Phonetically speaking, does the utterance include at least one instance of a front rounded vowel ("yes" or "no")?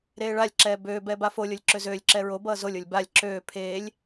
yes